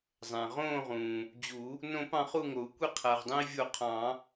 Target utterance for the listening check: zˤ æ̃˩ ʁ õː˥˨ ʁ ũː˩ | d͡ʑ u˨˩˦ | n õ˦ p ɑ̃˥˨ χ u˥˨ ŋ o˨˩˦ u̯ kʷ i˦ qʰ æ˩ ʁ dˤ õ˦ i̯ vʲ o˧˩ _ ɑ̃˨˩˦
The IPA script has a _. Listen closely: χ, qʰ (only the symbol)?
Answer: qʰ